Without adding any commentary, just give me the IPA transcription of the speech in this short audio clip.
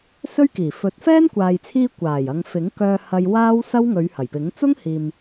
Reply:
s ɵ˥ ɥ k iː˨˩ f ɵ˨˥ t̚ f ɛː˥ n kʷ aː˨ j t͡sʰ iː˧ kʷ aː˨˩ j ɐ˨˧ ŋ f ɪ˨˥ ŋ k œː˧ h ɐ˧ j w aː˥ w s ɐ˥ w ŋ ɵ˨˧ ɥ h ɐ˨˩ j p ɪ˨˥ ŋ t͡s ʊ˥ ŋ h iː˨ m

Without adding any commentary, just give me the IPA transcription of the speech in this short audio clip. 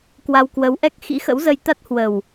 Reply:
k w a˧ w k w ə˨˦ w ʔ ɛ˦˥ k̚ x ḭ˧˥ x ə̰˧˥ w z ə˧ j t̪ a˦˥ t̚ h w ə˨˩ w

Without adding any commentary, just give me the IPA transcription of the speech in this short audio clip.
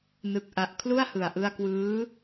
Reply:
n ɯ˨˩ k̚ ʔ a˨˩ ʔ kʰ l u˥˩ a̯ h ɯ˨˩ a̯ ʔ ɯ˧ a̯ k w ɯː˦˥

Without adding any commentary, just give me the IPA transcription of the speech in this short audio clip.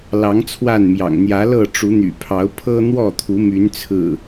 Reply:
l ɑ˨˦ ŋ t͡sʰ w a˥˨ n m j ɑ̰˨˩ ŋ n̪ j ä˨˦ l ɤ˥˨ ʈ͡ʂ u˨˦ n̪ y̰˨˩ pʰ ɑ˨˦ ʊ̯ pʰ ɤ˦ n̪ w ɔ˥˨ t̪ʰ u˨˦ m y˨˦ n t͡sʰ ɹ̩˨˩

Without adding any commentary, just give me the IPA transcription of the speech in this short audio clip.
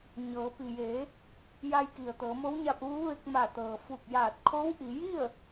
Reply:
ɲ ɤː˩˧ p i˩ j eː˩˧ | j a˧ j k i˩ ə̯ t̪ ɤː˩˧ m o˧˥ w ɲ a˧ p̚ ʋ uː˧˥ ʋ e˧ k̚ m a˧˩ t̪ ɤː˩ f u˧˩ k̚ j aː˧˩ t̚ kʰ o˧˥ w ʔ i˩˧ j i˥˨ ə̯

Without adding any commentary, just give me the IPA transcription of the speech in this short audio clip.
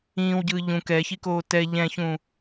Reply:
ĩː w ɟ ɯː ʎ ũ k ɛ ç i k oː t ɛ ʎ ɛ̃ ç ũ

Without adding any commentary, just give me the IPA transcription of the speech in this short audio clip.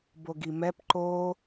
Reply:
b o ɡ i m ɛ p ǃ o

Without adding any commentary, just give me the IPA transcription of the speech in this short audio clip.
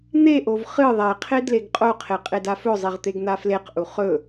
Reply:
n̪ e ʔ o v χ ɨ ðˤ e qʰ e d l e ɡ qʼ o qʰ e qʼ e d a f ɵ zˤ i ʁ t̪ e ɡ n̪ a f l e q ʔ u χ ɵ

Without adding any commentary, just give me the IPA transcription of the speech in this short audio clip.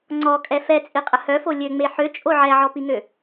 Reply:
ŋ͡ǀ ɔ kʼ ɛ f ɛ t͡sʼ i qʼ ə h œ f o lʲ ø ŋ͡m e ħ ø t͡ʃʼ o ʕ ɛ ʕ ɔ p i ŋ ø

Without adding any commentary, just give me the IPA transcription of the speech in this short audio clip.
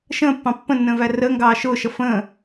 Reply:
ʃ ə̃ː pː ɑ̃ pː ə̃ nː ə̃ː v æ r ə ŋ ɡ ɑː ʃ ʊː ʃ ʌ f ə̃ː

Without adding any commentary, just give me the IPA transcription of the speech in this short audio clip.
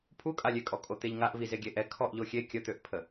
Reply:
pʰ u kʼ a lʲ e kʼ ɔ kʼ o t̪ e ʎ ŋ a ʔ v i z e ɡʲ e ʔ ɛ kʰ ɔ ʔ ʎ o xʲ e kʲ ə t̪ ø ʔ pʰ ə

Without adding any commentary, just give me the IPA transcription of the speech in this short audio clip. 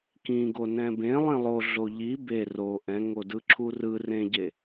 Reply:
k ĩ ɡ o n ɛ̃ b ẽ lˠ ĩ lˠ o ɮ o ʎ i b e r o ʔ ɛ̃ ŋ o d ɯ ǁʰ u r ɯ r ẽ ɟ e

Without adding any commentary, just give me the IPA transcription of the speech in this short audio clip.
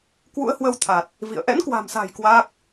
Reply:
k w ṵ˧˥ ə̯ h w ə˧ w t̪ʰ a˨˩ t̚ | v ḭ˧˨ ə̯ ʔ ɛ̰˧˥ n k w a̤˨˩ m s a̤˨˩ j k w aː˦˥ k̚

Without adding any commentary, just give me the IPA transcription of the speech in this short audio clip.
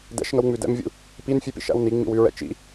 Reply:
d ɛ̰ ʃ ŋ ə w ŋ͡m ʉ d ɛ̰ m vʲ ṵ | p i n fʲ ʉ p ḭ ʃ æ̰ w n i ŋ͡m ḭ w ʉ ɹ ɛ̰ t͡ʃ ḭ

